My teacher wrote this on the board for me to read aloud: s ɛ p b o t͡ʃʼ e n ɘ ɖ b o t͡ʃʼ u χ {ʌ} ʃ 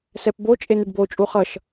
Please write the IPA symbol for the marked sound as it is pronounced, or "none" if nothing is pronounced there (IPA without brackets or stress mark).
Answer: ʌ